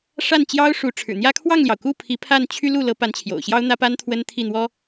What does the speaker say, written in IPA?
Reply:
ʂa˥˩nt͡ɕjɑ˥ʊ̯ ʂu˧˥ʈ͡ʂʰɻ̩˨˩n̪jä˥ kʰwɑ˥˩ŋljɑ˩ʊ̯ku˥˩ pʰi˧˥pʰa˥˩n t͡ɕʰy˥lu˥˩ lɤ˧˥pa˧˥n t͡ɕʰjo̰˨˩ʊ̯ɕjɑ˥ʊ̯n̪ä˥pa˥n t̪ʰwə˥nt̪ʰi˥˩n̪wɔ˥

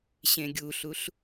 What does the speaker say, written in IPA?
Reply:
ɕẽɡʲuɬuɬ

